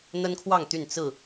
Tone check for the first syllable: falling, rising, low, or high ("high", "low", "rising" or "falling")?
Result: high